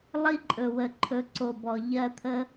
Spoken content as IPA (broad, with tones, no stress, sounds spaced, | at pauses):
lˠ i˦ ǃʼ ɵ˨ w ə˨ ǃʰ ɵ˨˦ ǀ o˨ b ɔ˨ ʎ ɜ˧ t̪ʰ ə˦